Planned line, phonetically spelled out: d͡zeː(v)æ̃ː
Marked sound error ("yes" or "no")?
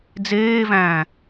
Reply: no